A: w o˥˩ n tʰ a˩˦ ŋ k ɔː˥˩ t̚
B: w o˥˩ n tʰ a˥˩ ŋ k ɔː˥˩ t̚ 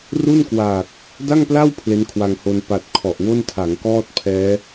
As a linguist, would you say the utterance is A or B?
A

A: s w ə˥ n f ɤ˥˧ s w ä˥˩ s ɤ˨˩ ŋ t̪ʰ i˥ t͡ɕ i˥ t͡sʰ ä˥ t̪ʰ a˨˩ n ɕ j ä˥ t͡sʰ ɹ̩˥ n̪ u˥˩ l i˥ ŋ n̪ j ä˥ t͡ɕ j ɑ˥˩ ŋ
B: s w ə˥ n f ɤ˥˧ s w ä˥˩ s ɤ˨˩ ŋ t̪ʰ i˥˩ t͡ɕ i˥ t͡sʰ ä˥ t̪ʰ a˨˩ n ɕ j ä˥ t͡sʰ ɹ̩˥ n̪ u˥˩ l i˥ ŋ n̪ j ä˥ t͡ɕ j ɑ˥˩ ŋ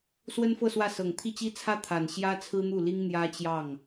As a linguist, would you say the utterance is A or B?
B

